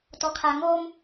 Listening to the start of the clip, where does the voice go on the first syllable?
low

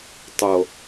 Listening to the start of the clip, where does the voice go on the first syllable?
low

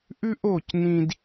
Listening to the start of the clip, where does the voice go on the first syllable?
high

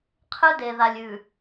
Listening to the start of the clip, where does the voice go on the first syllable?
high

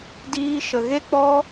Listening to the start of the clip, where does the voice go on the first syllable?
high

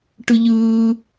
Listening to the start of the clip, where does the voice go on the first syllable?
high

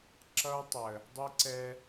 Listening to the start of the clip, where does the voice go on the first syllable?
high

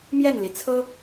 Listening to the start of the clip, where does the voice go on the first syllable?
falling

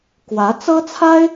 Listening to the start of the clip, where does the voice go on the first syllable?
rising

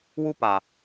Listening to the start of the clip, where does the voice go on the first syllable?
high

